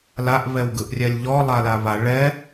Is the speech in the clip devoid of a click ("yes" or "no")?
yes